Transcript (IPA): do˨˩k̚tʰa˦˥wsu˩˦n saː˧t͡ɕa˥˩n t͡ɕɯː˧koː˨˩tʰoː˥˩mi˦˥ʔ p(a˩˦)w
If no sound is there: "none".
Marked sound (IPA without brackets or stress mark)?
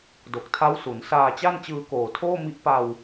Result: a˧